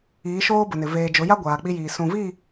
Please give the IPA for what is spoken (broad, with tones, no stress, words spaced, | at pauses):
iː˨˦ʃoː˦bʊ˨nɪ˨ veː˨d͡ʒʊ˨˦ja˦ ɡʷaː˨k͡pi˦jiː˨ sũ˨vi˦˨